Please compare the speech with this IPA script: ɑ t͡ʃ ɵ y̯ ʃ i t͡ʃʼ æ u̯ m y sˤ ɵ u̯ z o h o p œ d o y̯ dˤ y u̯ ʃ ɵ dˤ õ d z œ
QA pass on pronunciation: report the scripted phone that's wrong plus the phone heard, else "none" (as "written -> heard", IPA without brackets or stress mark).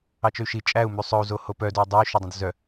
none